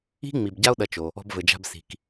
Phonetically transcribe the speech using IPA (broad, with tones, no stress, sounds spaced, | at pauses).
i̤˥ ŋ͡m i˨ b ɟ a˥ o̯ ɗ ɐ˨ t͡ʃ o˩ | ɔ̤˨ b v ɘ˩ d͡ʒ a̤˨ b s i̤˩ k